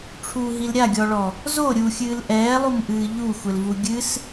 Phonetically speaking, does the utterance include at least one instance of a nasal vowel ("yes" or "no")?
no